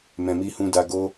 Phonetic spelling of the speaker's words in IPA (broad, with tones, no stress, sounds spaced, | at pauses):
m ɛ̃˨ m i˧ h ũ˧ d a˧ ɡ o˦